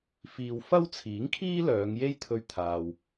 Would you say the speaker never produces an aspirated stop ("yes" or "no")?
no